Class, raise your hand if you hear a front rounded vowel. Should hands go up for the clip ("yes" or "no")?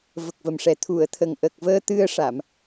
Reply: no